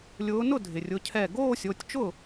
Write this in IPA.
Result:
lʲ ʊː˨˦ n ʊ˥˩ dʱ ɪ˩ rʲ ʊ˩˧˩ cʰ ɛ˧˩ ɡ oː˥˧ sʲ o˩˧˩ tʲ t͡ʃ ʊ˥˩

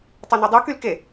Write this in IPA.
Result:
tˤ œ n ø dˤ u k y l k e

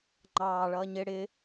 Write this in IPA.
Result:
ŋ͡ǃ ɑː ɭ ʌː ɲ ɪ ɽ ɪ

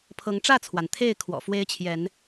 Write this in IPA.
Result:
pʰ ɤ˨˦ ŋ ʈ͡ʂ ä˥˨ t͡sʰ w a˩ n t̪ʰ e˥˨ ɪ̯ kʰ w ɔ̰˨˩ f w e˦ ɪ̯ t͡ɕʰ j ɛ˨˦ n

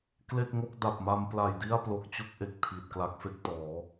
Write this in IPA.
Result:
k l e˥˩ k̚ ŋ o˥˩ k̚ d a˨˩ p̚ m a˧ m p l a˨˩ j d i˥˩ a̯ p l o˨˩ k̚ t͡ɕ u˥˩ k̚ ʔ e˨˩ k̚ tʰ iː˨˩ t̚ k l a˦˥ k̚ f e˦˥ k̚ t ɔː˩˦

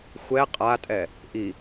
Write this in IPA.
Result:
xʷ ɛ qʼ a tʼ ɛ | ʔ i

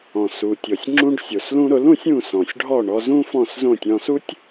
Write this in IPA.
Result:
ɔ̃˩ s u˩ tʲ ɔ˩ sʲ ŋ͡ǁ ũ˧ ɖ sʲ o˩ s l ũ˧ ɾ ʊ˩˥ l ũ˩˥ sʲ ũ˥˩ s ɔ̃˩ sʲ ɖʱ ɔ˥˩ ɳ ɔ˧ z ũ˥ f ɔ̃˥˩ s z õ˥˩ tʲ ɔ̃˧ s u˥ tʲ

